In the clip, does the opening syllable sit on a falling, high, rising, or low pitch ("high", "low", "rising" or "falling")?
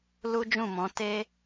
high